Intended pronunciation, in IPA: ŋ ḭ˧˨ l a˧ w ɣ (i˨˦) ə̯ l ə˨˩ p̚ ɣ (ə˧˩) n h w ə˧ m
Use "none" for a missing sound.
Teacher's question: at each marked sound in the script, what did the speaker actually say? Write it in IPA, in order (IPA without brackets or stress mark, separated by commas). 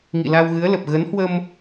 ɨ˨˦, ə˨˦